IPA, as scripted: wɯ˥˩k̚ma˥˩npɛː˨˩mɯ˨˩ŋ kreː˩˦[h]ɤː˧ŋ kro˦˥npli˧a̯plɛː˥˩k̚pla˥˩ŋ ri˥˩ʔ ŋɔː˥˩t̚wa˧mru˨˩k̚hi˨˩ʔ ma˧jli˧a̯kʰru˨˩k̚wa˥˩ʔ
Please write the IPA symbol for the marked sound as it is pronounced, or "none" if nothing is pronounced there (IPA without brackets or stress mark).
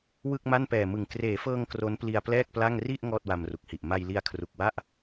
f